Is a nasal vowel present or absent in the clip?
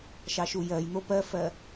absent